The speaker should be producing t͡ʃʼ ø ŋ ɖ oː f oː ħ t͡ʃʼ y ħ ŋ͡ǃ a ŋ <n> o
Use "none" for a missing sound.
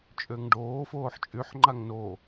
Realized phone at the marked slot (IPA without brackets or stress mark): n